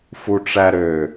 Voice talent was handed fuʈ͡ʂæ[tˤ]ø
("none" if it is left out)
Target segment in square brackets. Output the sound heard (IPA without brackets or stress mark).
ɾ